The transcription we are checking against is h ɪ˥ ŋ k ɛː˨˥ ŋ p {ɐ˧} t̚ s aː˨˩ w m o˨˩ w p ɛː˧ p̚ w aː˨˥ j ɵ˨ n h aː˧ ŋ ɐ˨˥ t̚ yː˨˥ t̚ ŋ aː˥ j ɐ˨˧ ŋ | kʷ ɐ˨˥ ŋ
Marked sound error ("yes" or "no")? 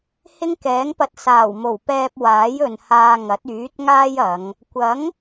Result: no